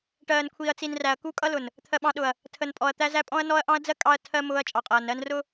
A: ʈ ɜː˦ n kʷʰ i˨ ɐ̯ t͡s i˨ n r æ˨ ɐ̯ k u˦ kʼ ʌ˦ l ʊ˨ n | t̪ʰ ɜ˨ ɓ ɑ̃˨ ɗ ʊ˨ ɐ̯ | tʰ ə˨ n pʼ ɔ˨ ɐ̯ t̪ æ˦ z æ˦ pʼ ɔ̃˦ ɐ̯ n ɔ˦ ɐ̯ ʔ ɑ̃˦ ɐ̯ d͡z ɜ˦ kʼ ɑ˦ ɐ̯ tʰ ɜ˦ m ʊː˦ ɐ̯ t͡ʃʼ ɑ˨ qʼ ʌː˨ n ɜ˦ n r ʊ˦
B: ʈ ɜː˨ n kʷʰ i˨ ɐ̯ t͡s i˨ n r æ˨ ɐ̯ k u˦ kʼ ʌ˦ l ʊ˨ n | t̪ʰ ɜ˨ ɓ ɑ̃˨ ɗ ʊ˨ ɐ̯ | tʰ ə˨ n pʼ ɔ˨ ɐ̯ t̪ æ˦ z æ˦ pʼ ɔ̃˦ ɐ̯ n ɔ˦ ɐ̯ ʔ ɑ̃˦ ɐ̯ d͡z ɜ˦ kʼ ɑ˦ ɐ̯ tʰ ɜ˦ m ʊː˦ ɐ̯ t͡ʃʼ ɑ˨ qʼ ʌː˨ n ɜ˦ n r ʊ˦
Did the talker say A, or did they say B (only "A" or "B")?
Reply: B